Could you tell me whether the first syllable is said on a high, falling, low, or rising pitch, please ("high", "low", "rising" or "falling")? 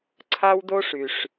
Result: high